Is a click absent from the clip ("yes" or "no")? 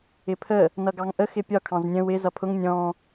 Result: yes